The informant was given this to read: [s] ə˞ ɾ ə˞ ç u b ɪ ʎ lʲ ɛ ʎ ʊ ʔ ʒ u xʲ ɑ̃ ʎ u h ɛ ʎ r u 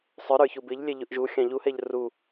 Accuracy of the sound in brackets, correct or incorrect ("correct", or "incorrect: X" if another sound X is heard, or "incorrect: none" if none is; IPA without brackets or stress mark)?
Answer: incorrect: sˤ